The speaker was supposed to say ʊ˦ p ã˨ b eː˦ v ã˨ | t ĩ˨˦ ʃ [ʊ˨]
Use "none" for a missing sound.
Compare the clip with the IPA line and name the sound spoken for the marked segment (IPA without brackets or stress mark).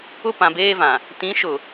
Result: ʊ˨